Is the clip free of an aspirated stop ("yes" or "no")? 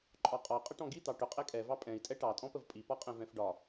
yes